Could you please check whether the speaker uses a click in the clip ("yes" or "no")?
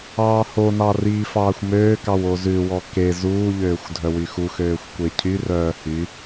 no